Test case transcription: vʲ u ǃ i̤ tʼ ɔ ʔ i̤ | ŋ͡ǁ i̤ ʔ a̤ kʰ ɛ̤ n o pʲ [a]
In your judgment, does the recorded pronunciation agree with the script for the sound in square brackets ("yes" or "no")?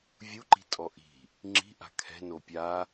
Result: yes